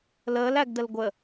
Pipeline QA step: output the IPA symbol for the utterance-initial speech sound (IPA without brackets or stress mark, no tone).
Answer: l